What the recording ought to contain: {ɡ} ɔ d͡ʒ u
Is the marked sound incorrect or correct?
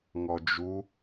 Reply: incorrect